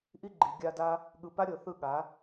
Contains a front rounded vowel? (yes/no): no